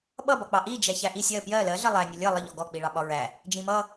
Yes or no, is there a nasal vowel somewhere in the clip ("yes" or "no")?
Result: yes